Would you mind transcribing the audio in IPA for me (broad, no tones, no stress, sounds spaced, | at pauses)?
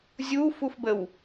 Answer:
zʲ u f u f b ə w